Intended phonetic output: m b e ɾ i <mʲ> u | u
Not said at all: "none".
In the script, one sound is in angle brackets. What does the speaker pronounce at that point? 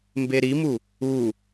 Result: m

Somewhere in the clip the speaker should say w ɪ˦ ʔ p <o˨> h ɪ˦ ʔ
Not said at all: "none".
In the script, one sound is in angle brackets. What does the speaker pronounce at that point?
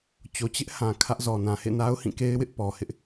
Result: ɔ˨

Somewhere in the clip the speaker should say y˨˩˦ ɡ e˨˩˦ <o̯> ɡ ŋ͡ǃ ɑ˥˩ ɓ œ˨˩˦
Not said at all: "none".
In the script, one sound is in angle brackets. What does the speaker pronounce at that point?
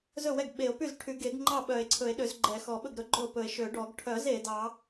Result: none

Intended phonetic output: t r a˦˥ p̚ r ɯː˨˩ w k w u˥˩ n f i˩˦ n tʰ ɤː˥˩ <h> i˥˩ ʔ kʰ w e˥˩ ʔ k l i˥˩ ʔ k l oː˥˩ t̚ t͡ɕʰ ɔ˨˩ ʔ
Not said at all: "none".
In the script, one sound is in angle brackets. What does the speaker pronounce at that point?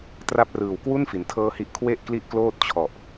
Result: h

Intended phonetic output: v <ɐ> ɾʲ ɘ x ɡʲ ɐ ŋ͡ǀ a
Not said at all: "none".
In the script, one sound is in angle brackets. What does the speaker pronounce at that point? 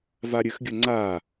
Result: a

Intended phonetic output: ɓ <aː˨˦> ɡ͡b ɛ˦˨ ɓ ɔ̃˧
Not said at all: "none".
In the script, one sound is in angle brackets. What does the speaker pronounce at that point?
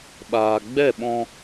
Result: aː˨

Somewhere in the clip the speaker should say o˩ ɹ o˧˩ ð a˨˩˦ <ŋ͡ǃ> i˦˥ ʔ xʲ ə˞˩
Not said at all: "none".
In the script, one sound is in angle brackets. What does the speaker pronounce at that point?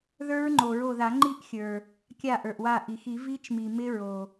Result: ŋ͡ǃ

